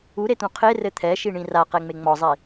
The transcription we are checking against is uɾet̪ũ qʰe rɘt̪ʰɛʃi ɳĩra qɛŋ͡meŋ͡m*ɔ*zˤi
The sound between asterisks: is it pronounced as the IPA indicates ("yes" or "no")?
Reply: yes